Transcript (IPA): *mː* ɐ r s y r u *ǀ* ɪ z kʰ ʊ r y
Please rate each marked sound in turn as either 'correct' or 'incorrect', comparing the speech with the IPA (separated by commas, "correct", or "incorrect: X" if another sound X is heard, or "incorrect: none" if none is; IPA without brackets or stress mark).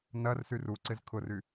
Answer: incorrect: n, correct